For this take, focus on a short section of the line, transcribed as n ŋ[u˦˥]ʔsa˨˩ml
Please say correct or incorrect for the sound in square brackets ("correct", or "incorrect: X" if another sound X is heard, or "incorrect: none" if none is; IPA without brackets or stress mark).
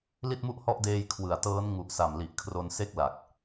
incorrect: u˨˩